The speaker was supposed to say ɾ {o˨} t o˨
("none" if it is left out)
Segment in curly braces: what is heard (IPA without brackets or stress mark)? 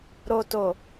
o˨